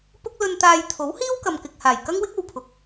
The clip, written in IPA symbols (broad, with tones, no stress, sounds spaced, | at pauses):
p ʊ˥ k̚ l ɵ˧ n t̪ aː˧ j t̪ʰ o˨˥ w h iː˥ w k ɐ˨ m k ɪ˨ k̚ h aː˨˩ j k ɐ˥ ŋ w ɪ˥ k̚ o˨˧ w pʰ ʊ˨ k̚